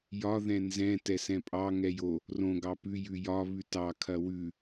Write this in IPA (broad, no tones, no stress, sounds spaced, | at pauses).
j ɒ ð ɛ̃ n z ɛ̃ t ɛ s ɛ̃ pʼ ɑ ŋ ɛ j o | r õ ɡ ɑ p ʉ j ʉ j ɒ β ʉ t ɑ kʰ ɐ w ʉ